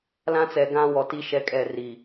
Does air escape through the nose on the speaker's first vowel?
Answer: yes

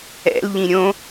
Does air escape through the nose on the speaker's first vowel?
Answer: no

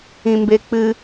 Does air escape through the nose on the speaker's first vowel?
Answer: yes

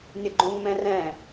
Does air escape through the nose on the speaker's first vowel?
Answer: no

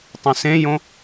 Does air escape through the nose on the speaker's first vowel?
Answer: yes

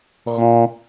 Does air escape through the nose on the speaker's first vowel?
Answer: yes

